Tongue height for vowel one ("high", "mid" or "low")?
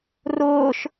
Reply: high